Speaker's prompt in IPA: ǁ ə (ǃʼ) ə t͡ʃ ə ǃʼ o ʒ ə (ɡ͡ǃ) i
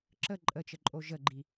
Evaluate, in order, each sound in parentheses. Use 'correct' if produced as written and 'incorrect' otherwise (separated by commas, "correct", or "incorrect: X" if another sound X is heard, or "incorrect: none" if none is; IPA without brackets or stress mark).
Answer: correct, correct